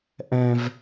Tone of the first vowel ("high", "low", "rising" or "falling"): high